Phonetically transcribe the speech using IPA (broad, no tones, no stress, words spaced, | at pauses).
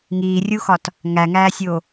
ŋiːrʲuxɒt | ŋæŋæːsʲoː